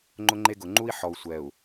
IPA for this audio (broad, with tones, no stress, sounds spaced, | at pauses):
ŋ͡ǃ ʊ˦ ŋ͡ǃ e˦ ɡ ʊ˨ ŋ͡ǃ u˦ i̯ ħ ɔ˨ u̯ sʷ ɛ˨ u̯